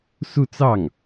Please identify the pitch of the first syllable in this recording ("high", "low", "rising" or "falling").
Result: falling